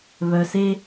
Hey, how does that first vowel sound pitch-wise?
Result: low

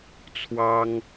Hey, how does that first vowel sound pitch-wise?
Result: high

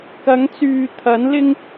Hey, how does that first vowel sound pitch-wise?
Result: rising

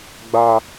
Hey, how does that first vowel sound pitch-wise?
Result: high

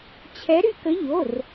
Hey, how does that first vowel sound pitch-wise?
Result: rising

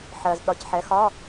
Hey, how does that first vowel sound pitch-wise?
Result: low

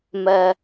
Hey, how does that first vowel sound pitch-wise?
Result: high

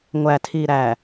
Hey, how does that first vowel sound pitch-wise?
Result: low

